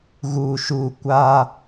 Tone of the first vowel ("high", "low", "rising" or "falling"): low